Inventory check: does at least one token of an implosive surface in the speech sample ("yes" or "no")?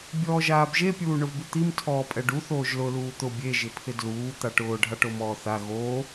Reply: no